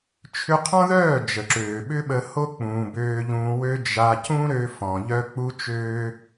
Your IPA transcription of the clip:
t͡ʃʰ ʏ˧ qʰ ɔ̃˦ ð œː˦˨ d͡ʒ ə˨ ǁ øː˨ ɓ ʏ˦ ɓ ə˧ h o˦ k͡p ũː˨ b øː˧ ʎ ũː˧ w ø˦ d͡ʒ a˧ c ũ˦ ɾ ø˧ f ɔ̃˨ ʎ œ˦ k͡p u˦ t͡ʃ øː˦

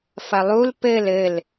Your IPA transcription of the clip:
f ɐ lˠ u l p ɘ l ɘ l

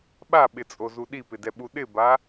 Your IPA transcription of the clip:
ɓ a ɓ ɪ t͡sʼ o z u ɗ i p ɪ d ɛ ɓ u ɗ ɪ b a

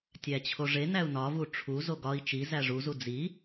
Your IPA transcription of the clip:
tʲ æ t͡ɕʰ o ʐ e n æ u̯ n ɒ v u ʈ͡ʂʰ u z o ɡ ɒ i̯ t͡ʃ i z æ ʐ u z u d͡z i

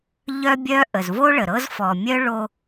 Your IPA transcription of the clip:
ʎ œ˦ bʲ œ˦ ʔ ə˨ z v o˦ ɭ ə˨ ɾ ɤ˦ z f ɔ˨ mʲ œ˦ ɭ o˦

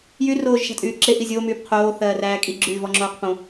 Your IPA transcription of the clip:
j y r oː ʒ ʃ a̤ tʼ yː ǁ e ʔ i zʲ oː m yː p qʰ oː θ ɜː r æː kʼ i ɡ͡ǁ yː v ɔ ŋ͡ǁ oː q p õ

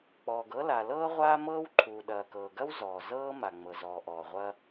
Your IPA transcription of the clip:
k͡p ɔː˩ ɡ ɤ˥ l a˩ l ɤː˥ ʁʷ aː˥ m ɤː˥ w ǃʰ uː˩ ɗ ɐː˩ k ɤː˩ ɡ ɐ˥ w z ɔː˩ z ɤː˥ m a˩ ŋ͡m ɤ˩ z ɔː˩ ʔ ɔː˩ ʁʷ ɐː˥

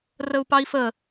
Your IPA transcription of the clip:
r ə u̯ p ɑ i̯ f ə

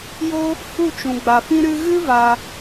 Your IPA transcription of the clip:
j o˦ | h u˦˨ t͡ʃ ũ˨ ɡ͡b a˨ f ĩ˦ ɾ ɨ˧ ɣ ɨ˦ v a˧

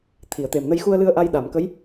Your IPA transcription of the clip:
t̪ʰ i˨˩˨ ə̯ t̪ e˨˩ m n ə˧ j x u˧ ə̯ l ɨ˧ ə̯ ʔ a˧ j ɗ a˨˩˨ m k ə˧˥ j

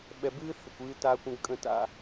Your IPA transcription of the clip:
ɓ ɛ˨ b ɨː˦ θ ə˨ kʷ ɨː˦ t aː˦ kʷ ə̃˦ ɡ kʼ ə̃˦ t a̰˦

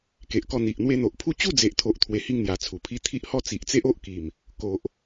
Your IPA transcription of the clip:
k e˨ ʔ k ɔ˧ n̪ i˨ ʔ n̪ w e˧ n̪ o˨ ʔ pʰ u˥˧ t͡ɕ u˥˧ d͡z e˨ ʔ t̪ʰ o˨ ʔ t̪ʰ w e˨˩ h i˧ ŋ n̪ j a˨˩ t͡sʰ u˨˩ pʰ i˦ t̪ʰ i˦ ʔ h ɔ˦ t͡s i˨ ʔ t͡s e˦ ʔ o˦ ʔ k i˨˩ m | k o˨ ʔ

